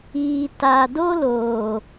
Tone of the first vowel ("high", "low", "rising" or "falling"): low